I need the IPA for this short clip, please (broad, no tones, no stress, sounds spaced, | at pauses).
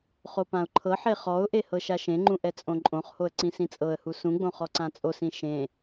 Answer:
χ o p ã ʊ̯ ǃʰ ɤ ħ e χ ɔ ʊ̯ ʔ e h ɤ ʃ a ʃ ẽ ŋ͡ǃ ũ ʔ ɛ t͡sʼ õ ǃʼ õ χ h o ə̯ ǀ ĩ s ĩ t͡sʼ ɤ ə̯ h u s ũ ɡ͡b õ χ ɔ ǀ ã t͡sʼ o s ĩ ʃ ẽ